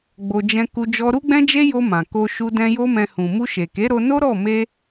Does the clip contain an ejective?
no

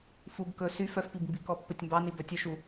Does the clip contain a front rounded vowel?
yes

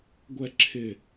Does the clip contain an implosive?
no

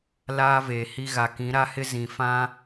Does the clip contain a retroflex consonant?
no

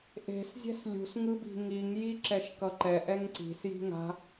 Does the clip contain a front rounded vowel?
no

